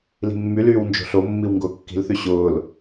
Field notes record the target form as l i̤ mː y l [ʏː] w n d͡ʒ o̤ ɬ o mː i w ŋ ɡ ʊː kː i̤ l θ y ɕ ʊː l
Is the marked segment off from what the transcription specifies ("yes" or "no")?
yes